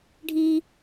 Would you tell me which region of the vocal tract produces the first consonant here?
retroflex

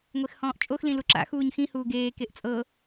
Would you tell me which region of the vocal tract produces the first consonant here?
velum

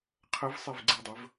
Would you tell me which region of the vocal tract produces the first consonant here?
uvula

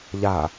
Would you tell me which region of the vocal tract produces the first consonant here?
palate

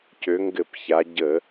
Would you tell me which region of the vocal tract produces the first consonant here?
palate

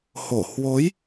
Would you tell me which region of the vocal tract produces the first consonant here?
throat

